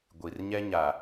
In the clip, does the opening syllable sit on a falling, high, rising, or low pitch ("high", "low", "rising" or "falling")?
low